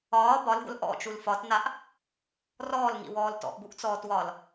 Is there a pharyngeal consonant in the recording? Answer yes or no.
no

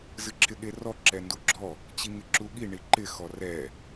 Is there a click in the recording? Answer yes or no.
yes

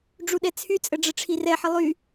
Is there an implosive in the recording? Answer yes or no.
yes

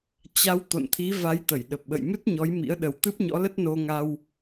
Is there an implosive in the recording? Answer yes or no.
yes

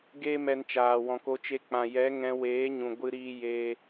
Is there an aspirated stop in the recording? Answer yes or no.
no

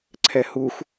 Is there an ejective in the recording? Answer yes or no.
no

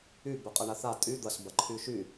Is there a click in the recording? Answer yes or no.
yes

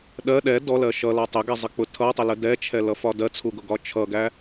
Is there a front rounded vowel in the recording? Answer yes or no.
no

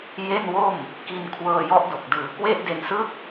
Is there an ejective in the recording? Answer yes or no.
no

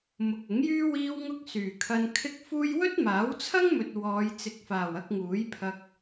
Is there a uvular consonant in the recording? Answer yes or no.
no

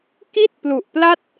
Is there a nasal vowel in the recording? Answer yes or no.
no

